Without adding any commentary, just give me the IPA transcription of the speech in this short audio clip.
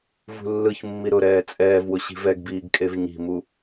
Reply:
v ṳ lː ɯ ç mː i ɾ ʊ ɾ ɛː t͡sʼ ɛː v w ʊ ɕ i̤ v ɛ ɡ b iː ɡ kʼ e v ɲ i̤ m u

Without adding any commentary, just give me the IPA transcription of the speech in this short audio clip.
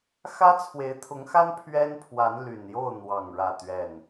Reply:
x ä˦ t͡sʰ w e˨˦ ɪ̯ t̪ʰ ʊ˨˦ ŋ x a˦ n pʰ ɥ ɛ˦ n pʰ w a˨˦ n l y˨˩ n j o˥˨ ʊ̯ n̪ w ɑ˥˨ ŋ ɻ ä˥˨ t̪ ɥ ɛ˥˨ n

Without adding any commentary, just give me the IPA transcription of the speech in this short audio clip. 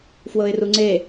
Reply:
f w ɤ ɪ̯ r u ŋ͡ǀ e

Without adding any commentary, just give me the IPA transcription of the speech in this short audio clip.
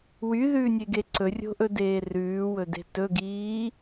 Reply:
w y ð ʉː nʲ e ɡ e ǀ ɵ rʲ o̤ ʔ ɵ d eː r ʉː w ɵ d e̤ t ɵ ɡ iː

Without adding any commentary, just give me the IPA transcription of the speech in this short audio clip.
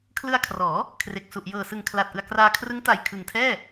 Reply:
kʰ l ɯ˧ a̯ kʰ r ɔː˩˦ | kʰ r e˨˩ k̚ s u˨˩ ʔ j ɤː˨˩ s ɯ˨˩ ŋ kʰ l aː˨˩ t̚ ʔ ɯ˨˩ a̯ k r aː˧ kʰ r ɯ˦˥ ŋ t a˨˩ j kʰ ɯ˨˩ ŋ tʰ ɛː˥˩

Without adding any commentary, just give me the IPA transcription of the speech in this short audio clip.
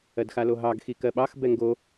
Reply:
ɜ d x a l o ɦ ɑ ɡ x i k ɜ ɓ ɑ x b ɛ ŋ ɡ o

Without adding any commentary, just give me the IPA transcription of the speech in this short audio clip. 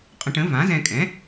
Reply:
qʼ ə̃˧ ʈ ə̃˩˥ v ã˩˥ z ɛ̃˧ kʼ ɛ̃˩˥

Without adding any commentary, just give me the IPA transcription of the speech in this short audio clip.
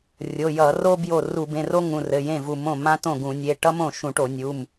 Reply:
rʲ o˩˧˩ j ʌ˧˩˧ r o˥ b j o˥˩ r u˧˩˧ b ẽ˩˧˩ r o˥ ŋ ũ˩˧˩ r ɘ˩˧˩ j ẽ˥˩ v u˧˩˧ m õ˥˩ m ã˥ t õ˥˩ ɡ ũ˧˩˧ nʲ e˩˧˩ ʈ ʌ˥ m õ˥˩ ʃ ũ˧˩˧ ʈ o˧˩˧ nʲ u˩˧˩ m

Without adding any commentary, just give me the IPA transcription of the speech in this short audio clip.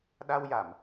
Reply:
ɗ a˧ w j a˨˩˨ m

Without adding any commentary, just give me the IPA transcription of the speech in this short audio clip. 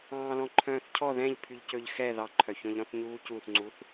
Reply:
ɑ̃ː l ɔ̃ ǃʰ œ̃ː θ cʰ ɔ ð ɛ̃ ʎ pʰ y ʎ c ɵ ʎ x ɛ ð ɑ ǃʰ œ ç ɔ̃ ʎ ɾ ɔ̃ θ ɲ uː c u θ ŋ͡ǀ u θ

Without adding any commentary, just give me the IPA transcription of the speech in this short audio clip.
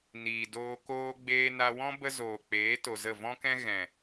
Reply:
n iː˨ d oː˧ k oː˧ ɡ͡b eː˧ n a˧ w ɔ̃˦ b ə˦ z oː˨ k͡p eː˨˦ t o˨ z ə˦˨ v ɔ̃˦ k ɛ̃˦ ɣ ɛ̃˨

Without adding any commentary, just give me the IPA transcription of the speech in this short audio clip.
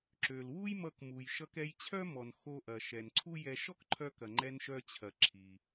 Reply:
ǁ ø˩ l w u˥ j m ʌ˧ k m u˩ j ʃ ʌ˧ k ɛ˧ j t͡ɕʰ œ˥ m ɔ˩ n x o˧ ʔ ɐ˩ ʃ ɛ˩ n ǀʰ u˥ j ɛ˧ ʃ ɔ˥ k ǃʰ œ˧ k ɐ˩ ŋ͡ǃ ɛ˧ n ʃ œ˧ t͡ɕʰ ɐ˩ ǁʰ i˩

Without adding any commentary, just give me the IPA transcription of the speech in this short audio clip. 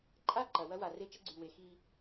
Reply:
ǃʼ a˦˨ ǃ ɐ˨ w ɐ˦ w a˨ r e˦ t͡ʃ ə˦ ɡ͡ǀ y˨ w e˨˦ x i˦

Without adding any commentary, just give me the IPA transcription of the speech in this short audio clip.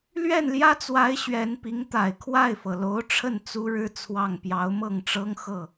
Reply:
l ɥ ɛ˥˩ n l j ä˥ t͡s w a˧˥ ɪ̯ ɕ ɥ ɛ˧˥ n p i˧˥ ŋ t̪ a˨˩ ɪ̯ kʰ w a˥˩ ɪ̯ f ɤ˩ l o˧˥ ʊ̯ ʈ͡ʂʰ ə˥˩ n t͡s u˥ ɻ ɻ̩˥ t͡sʰ w ɑ˥˩ ŋ p j ɑ˧˥ ʊ̯ m ɤ˥˩ ŋ ʈ͡ʂ ɤ˥ ŋ x ɤ˥˩

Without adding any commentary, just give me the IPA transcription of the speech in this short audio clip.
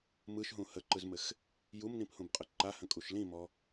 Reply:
m ɯ ʃ ɦ ũ h ə ǃ ɯ z m ɘ x | j u m n ĩ p h ũ b qʼ ə ǃ a h ə̃ kʼ u ʃ l ĩ m ɔ

